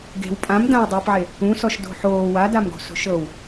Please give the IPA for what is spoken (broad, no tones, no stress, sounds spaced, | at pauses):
ɡ e̤ w pʼ ã m d ã w dˤ oː p ʕ e | ũ s ɔ ʃ d o̤ ħ oː w a d a m ɡ o̤ s o̤ ʃ ɤ w